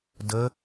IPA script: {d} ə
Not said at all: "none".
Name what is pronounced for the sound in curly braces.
d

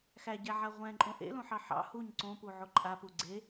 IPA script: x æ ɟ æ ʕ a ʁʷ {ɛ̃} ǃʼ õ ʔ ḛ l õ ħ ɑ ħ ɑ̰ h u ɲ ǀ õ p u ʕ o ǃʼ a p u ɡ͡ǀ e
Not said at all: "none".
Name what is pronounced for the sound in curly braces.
ɛ̃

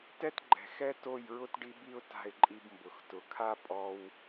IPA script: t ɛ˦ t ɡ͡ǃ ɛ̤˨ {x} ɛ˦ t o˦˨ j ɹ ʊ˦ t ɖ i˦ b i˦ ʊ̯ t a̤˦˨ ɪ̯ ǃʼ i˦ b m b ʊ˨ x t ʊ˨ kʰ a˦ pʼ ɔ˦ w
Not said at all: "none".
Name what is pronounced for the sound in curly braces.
x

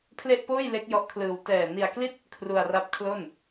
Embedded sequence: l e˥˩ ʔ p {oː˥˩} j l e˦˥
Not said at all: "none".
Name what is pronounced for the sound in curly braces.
oː˥˩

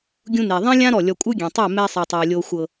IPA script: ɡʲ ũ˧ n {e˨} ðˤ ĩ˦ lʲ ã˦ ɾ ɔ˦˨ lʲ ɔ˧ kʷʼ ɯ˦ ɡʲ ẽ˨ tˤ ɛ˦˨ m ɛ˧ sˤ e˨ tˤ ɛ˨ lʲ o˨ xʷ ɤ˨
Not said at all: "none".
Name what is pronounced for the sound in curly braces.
e˨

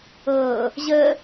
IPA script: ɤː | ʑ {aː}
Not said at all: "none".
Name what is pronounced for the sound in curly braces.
əː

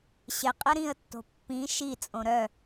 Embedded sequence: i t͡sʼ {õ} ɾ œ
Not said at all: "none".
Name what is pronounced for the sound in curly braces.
õ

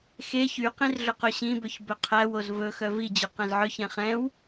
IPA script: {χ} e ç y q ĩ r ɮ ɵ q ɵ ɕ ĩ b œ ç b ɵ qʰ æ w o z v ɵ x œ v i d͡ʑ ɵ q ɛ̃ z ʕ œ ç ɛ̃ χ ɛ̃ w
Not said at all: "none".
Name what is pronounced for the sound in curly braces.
x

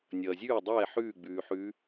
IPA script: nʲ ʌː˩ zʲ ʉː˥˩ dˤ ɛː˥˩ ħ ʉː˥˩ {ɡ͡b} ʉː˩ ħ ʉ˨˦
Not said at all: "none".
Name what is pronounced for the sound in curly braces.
ɡ͡b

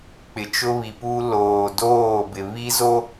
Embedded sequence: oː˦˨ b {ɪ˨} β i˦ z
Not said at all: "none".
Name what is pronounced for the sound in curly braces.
ɪ˨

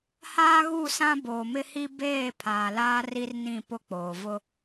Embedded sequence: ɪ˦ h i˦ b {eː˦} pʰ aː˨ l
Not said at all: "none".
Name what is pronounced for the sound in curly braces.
eː˦˨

